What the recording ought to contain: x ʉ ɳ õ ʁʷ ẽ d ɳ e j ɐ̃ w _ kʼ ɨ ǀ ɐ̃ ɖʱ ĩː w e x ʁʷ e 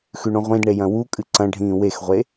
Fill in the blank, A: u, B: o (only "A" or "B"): A